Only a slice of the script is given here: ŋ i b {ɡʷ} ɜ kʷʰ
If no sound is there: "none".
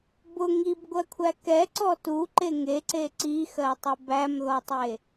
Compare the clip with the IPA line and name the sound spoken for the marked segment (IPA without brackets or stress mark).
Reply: ɡʷ